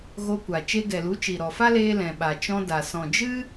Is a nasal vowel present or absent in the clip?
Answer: present